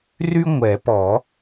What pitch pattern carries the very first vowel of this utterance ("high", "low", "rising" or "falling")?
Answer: high